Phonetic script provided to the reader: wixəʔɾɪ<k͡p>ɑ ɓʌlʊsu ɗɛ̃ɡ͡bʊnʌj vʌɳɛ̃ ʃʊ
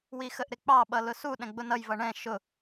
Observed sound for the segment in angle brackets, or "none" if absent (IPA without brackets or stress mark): k͡p